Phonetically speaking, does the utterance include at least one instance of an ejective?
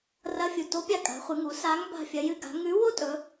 yes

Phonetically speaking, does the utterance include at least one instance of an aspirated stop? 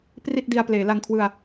yes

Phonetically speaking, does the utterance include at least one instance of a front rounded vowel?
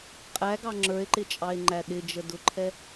no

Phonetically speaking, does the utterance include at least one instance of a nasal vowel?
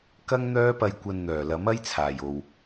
no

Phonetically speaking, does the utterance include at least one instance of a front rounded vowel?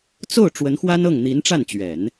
no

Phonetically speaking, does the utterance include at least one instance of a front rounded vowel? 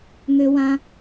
yes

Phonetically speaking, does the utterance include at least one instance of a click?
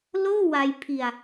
no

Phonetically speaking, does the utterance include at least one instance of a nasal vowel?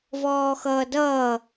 no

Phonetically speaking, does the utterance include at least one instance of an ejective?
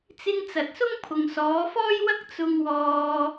no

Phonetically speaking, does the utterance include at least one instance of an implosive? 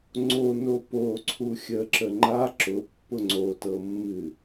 no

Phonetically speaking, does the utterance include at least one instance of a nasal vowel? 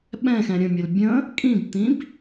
yes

